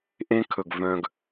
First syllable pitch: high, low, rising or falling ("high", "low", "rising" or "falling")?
high